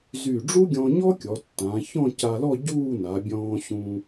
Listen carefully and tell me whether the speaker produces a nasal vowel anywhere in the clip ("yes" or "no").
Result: yes